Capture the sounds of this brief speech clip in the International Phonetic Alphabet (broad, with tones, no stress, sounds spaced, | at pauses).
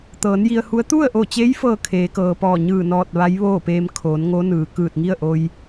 t̪ ɤː˩˧ n j i˧ ə̯ h u˧˥ ə̯ t̪ u˥˨ ə̯ ʔ o˧˩ t͡ɕ e˧˥ j f ɤː˥˨ kʰ eː˩˧ k ɤː˩ p ɔː˧˩ ɲ ɯː˧˩ n ɔː˧˩ t̚ ʋ a˧˥ j ʋ oː˥˨ p eː˧ m kʰ oː˩˧ n ŋ o˧˥ n ɯː˩ k ɯː˧˩ t̚ ŋ i˥˨ ə̯ ʔ o˧ j